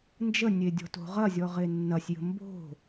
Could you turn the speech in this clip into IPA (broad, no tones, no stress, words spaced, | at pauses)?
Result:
nd͡ʒənʲedʲɔ̤to̤ ʁɐzʲɔʁe nːɐsʲjə̤ mbo̤